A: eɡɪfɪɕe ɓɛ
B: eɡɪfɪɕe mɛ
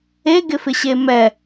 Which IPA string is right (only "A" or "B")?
B